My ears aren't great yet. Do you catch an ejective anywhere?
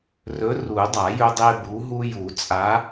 yes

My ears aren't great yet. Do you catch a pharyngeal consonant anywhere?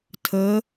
no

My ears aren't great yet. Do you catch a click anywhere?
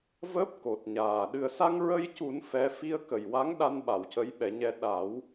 no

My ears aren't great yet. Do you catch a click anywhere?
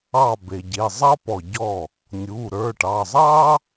no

